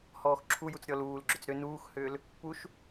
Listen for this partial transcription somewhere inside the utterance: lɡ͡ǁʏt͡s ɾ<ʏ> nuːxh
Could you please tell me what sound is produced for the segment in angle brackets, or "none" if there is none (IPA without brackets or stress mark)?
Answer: ʏ